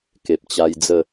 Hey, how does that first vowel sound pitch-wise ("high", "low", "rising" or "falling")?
low